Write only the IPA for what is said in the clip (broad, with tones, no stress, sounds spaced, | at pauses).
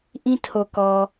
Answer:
ʔ ĩ˦ tʰ o˨ k ɔ˨